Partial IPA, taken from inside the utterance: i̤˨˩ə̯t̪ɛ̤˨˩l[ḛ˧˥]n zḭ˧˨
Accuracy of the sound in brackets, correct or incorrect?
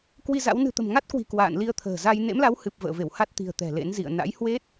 correct